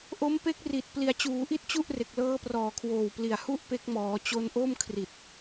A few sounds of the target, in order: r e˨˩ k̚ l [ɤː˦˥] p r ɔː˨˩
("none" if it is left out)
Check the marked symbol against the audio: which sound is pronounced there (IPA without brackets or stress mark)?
ɤː˦˥